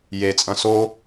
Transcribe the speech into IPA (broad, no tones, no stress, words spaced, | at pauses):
jet͡sʼɐ̃ so